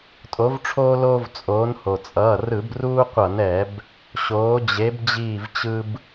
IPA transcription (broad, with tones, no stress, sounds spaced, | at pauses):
tʼ o˨˦ v ʈ͡ʂʰ oː˦ l oː˦ v t͡sʼ oː˨˦ n h o˩ t͡sʼ ʌː˩˧˩ r ɯ˧˩˧ b r uː˦ qʷ ʌ˧˩˧ n ɛ˧˩˧ b | ɕ oː˨˦ d͡ʑ e˨˦ b d͡ʑ iː˦˨ v t͡ɕ ɯ˦ b